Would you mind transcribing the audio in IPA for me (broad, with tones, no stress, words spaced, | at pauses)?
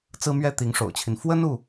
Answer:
t͡sɹ̩˥mɥɛ˥ t̪i˧˥ŋʂo̰˨˩ʊ̯t͡ɕʰi˦n fwə˥nu˨